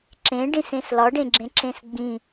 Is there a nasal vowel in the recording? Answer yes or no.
yes